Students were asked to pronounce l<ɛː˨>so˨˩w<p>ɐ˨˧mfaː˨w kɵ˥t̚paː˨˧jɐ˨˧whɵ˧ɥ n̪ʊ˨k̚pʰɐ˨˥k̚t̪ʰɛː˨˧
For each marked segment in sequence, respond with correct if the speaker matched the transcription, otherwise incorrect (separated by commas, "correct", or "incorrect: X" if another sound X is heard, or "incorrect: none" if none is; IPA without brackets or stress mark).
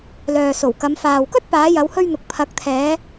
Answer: incorrect: œː˨, incorrect: k